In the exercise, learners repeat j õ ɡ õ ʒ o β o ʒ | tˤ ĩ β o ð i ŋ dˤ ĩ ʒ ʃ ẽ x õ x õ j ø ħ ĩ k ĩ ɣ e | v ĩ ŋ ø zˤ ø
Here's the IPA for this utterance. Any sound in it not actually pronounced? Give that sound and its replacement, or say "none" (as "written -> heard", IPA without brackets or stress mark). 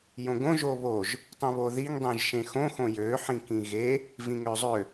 none